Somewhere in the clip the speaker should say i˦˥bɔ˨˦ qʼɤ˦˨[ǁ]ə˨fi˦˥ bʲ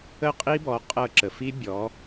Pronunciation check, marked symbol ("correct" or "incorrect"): correct